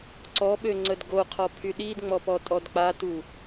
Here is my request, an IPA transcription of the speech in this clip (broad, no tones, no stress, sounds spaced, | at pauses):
ǀ ɔ ɓ ø ŋ͡ǀ ə d ɡ o qʰ ɔ pʰ y ɗ i d ŋ͡m ɔ p ɔ tʼ ɔ d k͡p a t u